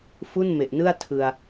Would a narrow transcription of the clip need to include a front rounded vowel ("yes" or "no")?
no